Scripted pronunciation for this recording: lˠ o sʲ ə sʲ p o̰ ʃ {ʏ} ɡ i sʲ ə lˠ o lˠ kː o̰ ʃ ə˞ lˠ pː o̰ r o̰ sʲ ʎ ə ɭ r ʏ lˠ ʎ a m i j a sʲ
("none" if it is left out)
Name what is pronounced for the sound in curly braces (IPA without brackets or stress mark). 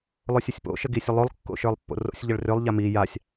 ə